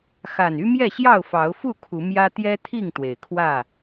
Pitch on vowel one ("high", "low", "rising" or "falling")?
low